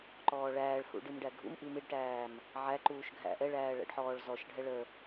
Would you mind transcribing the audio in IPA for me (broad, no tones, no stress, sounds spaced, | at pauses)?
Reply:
ǃ ɔː ɭ æː ɭ h ṵ ɖ i m ɖ æ ɡʱ ṵ m ʔ i m i ɖ ʈ æː m | ʕ æ ǃ uː ʃ ɡʱ æ̰ ʔ ɛ ɭ æː ɭ æ̰ ɖ ħ ɔː ɭ z ɔ ʃ ɖʱ ɛ ɭ ə